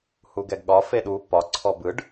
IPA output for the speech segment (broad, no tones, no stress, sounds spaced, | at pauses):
h u ɡ ɛ ɡ ɠ ɒ f e ɗ u p ɒ ǀʰ ɔ b ɯ ɖ